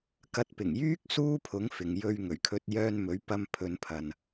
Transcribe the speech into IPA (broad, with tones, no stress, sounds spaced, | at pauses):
k ɐ˨˥ t̚ p ɪ˨˩ ŋ j yː˥ k̚ s uː˥ pʰ ʊ˨˥ ŋ f ɪ˨ ŋ j ɵ˧ ɥ ŋ ɵ˨˩ ɥ kʰ ɵ˧ t̚ j œː˧ n m ɵ˨˥ ɥ p ɐ˧ m pʰ ɵ˨˧ n pʰ ɐ˨ n